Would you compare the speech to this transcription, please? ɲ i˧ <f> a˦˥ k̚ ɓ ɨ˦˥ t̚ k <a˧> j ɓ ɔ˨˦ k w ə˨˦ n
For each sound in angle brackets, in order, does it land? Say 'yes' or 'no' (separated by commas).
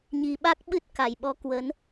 no, no